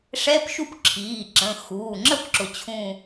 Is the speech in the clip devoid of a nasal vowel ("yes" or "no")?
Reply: no